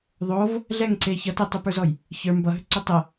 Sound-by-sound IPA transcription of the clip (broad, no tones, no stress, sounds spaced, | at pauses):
ðˤ o v | ɮ ɛ ŋ ǀ e ç ʌ t e tˤ ʏ p ə˞ z ɔ j | ç ə˞ m b ʌ ɦ ʏ ǀ ʏ tˤ ɛ